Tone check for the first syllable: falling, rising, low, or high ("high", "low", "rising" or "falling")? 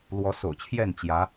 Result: rising